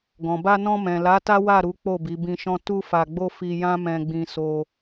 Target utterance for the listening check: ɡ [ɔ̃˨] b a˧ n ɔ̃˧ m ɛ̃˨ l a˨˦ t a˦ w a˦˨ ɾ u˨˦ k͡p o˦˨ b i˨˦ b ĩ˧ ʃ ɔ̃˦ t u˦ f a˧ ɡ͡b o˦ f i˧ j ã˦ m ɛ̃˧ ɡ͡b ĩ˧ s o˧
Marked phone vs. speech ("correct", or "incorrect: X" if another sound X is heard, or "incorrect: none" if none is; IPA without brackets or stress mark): correct